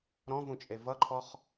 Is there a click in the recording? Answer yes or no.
yes